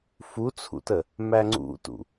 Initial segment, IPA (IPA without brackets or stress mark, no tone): f